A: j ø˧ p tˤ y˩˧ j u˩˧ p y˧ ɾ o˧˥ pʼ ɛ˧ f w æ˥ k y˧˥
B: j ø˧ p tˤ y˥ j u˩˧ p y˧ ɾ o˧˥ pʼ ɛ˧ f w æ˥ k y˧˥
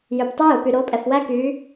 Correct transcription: B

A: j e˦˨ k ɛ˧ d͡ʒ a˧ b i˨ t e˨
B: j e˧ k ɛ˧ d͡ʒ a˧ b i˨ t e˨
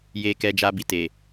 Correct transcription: B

